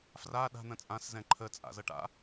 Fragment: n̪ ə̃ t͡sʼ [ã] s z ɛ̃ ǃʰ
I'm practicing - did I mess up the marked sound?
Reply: no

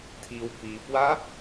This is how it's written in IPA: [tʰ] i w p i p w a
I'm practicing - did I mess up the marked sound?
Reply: no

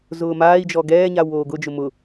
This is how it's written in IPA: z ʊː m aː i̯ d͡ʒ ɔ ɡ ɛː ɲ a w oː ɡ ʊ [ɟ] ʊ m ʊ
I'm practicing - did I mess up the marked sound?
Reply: yes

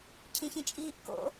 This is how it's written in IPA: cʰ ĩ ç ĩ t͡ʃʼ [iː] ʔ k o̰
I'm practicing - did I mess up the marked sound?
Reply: no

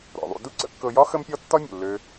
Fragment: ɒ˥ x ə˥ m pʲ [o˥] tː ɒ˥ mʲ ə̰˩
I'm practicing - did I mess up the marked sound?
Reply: yes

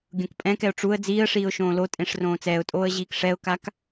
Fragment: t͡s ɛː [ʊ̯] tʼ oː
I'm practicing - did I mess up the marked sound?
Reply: no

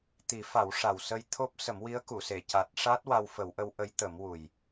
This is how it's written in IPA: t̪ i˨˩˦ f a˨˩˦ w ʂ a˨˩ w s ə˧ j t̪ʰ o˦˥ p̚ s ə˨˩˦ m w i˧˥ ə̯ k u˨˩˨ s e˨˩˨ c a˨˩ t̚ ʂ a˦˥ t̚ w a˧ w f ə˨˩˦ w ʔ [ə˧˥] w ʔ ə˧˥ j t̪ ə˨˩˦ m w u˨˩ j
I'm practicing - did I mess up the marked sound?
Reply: no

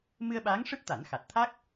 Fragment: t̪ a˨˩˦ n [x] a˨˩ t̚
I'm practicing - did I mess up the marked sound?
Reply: no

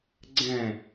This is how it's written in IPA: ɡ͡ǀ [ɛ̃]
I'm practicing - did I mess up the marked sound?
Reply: no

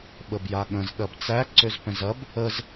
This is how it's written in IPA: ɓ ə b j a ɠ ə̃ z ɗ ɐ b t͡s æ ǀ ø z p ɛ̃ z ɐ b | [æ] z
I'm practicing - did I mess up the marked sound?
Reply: yes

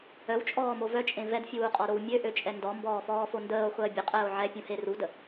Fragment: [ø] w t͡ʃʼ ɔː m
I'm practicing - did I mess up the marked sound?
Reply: yes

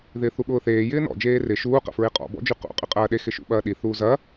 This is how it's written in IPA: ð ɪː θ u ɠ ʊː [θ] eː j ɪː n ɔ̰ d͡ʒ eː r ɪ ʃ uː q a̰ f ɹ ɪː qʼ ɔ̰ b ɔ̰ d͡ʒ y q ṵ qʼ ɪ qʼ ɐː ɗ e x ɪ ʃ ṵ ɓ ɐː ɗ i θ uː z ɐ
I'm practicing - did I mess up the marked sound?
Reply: no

